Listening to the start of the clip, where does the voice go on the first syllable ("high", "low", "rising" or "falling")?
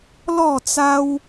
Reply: falling